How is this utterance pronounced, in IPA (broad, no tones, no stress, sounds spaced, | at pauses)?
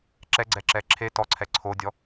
ǁ ɛ ɡ͡ǀ ɛ ǁ ɛ ǁʰ e t ɔ ǀʰ ɛ ǀʰ o dʲ ɔ